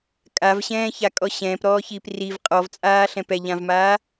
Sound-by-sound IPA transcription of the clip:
kʼ a v ɕ ɛ̃ː ç a kʼ ɔ ɕ ɛ̃ː p ɾ ɔː ç iː p r i v qʼ ɔ v t͡sʼ aː ɬ ɛ̃ p ɛ ʎ ã v m aː

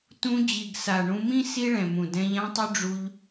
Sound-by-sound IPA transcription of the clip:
t ũ˧ d͡ʑ i˨ ɡ s a˨ ɳ ũ˧ m ĩ˦ s i˦ ɭ ɛ̃˨ m ũ˨ d ɛ̃˧ ʎ ã˦ tˤ ʊ˦ ɖ͡ʐ u˧ ʎ

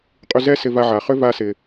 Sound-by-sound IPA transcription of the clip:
qʼ y˧ z ɛ˥ s ɪ˧ v a˧ ʕ a˩ χ ʏ˥ v a˧ s ɪ˩

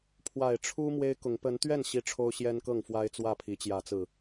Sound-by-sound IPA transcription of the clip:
pʰ w a˨˩ ɪ̯ ʈ͡ʂʰ u˦ m w e˦ ɪ̯ k ʊ˨˦ ŋ p ə˨˦ n t̪ ɥ ɛ˥˨ n ɕ i˦ ʈ͡ʂʰ o˦ ʊ̯ ɕ j ɛ˦ n k ɤ˥˨ ŋ f w a˦ ɪ̯ t͡s w ä˥˨ pʰ i˨˦ t͡ɕ j ä˨˦ t͡s ɹ̩˨˩

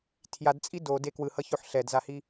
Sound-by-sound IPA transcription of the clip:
tʰ j a d t͡sʼ i d o d e k w ɯ h ʌ ç o ħ ɬ ɛ d z a h i

